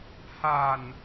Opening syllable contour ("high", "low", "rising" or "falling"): low